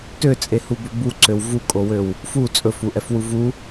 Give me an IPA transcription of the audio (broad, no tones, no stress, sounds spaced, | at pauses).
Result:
t ø t͡sʼ e h u b ɵ b u ǀ ø w v u kʼ o w ø w | f u t͡sʼ ɵ f u ʔ ɛ f w u v u